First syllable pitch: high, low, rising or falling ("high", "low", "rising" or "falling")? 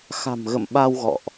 low